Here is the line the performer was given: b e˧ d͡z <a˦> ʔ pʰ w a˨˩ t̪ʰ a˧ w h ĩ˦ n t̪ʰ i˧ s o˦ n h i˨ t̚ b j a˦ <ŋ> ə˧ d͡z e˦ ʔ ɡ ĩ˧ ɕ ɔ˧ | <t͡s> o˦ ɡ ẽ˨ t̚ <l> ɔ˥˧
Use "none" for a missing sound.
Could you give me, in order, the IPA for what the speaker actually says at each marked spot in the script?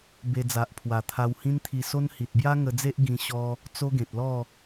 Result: a˨, ŋ, t͡s, l

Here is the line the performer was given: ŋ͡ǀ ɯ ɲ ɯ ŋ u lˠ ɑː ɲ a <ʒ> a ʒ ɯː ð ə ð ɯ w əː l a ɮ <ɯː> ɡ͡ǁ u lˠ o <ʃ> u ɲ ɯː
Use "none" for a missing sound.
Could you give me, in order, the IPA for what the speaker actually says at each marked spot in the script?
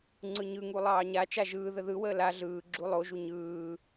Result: t͡ʃ, ɯː, ʒ

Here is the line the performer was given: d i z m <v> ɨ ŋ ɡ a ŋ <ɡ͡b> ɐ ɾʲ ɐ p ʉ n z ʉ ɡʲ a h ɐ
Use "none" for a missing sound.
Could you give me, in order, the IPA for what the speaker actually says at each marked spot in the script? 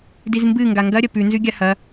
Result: b, ɡ

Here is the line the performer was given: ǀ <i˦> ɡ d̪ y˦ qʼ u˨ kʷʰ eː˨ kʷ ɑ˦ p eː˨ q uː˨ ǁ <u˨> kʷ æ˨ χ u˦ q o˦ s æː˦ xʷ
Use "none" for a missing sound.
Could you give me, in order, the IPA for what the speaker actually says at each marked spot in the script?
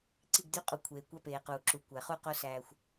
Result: i˦˨, u˨

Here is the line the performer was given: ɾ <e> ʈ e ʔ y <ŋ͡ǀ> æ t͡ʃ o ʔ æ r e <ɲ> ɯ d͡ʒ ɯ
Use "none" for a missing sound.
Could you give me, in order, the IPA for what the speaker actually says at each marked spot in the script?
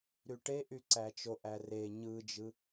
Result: y, ǀ, ɲ

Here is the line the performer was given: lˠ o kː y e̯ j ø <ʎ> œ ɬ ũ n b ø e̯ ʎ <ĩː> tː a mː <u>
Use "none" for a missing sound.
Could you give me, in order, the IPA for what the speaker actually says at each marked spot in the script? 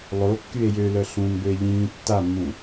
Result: l, ĩː, ũ

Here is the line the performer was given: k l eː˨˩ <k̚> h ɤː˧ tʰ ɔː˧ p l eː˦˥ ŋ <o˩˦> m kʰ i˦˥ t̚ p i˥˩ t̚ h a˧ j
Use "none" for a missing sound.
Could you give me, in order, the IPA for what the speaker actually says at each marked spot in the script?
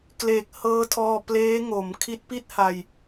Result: k̚, o˩˦

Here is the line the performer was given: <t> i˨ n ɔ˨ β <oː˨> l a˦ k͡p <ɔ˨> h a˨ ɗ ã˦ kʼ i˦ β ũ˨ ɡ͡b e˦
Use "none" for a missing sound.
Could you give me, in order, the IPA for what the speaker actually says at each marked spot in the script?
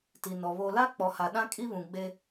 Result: t, o˨, ɔ˨

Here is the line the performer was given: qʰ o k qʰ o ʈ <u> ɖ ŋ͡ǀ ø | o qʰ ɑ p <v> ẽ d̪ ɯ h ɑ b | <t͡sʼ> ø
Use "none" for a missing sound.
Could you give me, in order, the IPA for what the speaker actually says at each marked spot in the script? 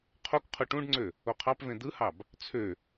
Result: ũ, v, t͡sʰ

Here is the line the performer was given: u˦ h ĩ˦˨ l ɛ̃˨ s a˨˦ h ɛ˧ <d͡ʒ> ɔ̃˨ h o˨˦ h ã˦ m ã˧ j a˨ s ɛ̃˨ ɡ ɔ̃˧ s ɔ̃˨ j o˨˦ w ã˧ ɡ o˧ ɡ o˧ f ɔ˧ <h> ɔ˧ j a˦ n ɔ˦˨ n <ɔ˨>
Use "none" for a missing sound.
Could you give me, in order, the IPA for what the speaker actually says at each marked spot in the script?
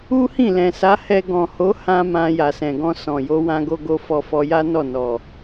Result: ɡ, f, ɔ˨

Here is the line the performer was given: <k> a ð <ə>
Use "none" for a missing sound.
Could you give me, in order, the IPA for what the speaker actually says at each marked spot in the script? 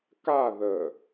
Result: k, ə

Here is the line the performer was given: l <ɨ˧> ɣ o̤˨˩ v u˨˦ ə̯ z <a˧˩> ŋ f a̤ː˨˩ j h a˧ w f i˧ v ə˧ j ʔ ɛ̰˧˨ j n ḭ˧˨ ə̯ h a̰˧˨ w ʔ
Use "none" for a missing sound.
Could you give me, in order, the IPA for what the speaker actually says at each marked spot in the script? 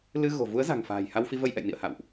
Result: ɨ˧, a̤˨˩

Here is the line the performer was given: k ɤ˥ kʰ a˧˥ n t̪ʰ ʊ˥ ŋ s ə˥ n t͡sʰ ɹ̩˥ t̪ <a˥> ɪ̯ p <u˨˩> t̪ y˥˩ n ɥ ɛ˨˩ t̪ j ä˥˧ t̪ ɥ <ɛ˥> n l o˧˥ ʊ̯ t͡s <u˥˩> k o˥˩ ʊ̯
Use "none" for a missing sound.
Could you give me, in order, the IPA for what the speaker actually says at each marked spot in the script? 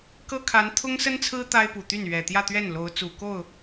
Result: a˥, u˨˩, ɛ˥˩, u˨˩

